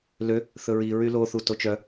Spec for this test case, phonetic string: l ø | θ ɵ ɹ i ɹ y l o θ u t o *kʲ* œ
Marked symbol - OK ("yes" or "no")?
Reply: no